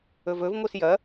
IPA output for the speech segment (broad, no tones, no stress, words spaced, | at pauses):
ɵvɵv ŋʷisjɐ